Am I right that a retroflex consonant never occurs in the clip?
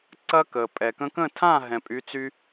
yes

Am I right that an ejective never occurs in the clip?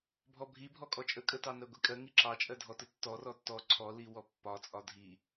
no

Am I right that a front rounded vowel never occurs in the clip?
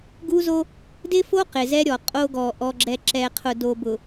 yes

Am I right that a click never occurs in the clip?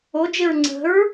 no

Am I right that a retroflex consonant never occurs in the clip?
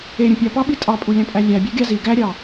yes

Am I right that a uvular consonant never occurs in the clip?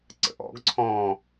yes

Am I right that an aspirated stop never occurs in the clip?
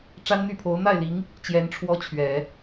no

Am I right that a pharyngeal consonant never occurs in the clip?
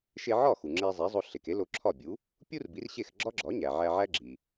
no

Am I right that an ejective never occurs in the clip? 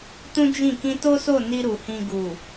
yes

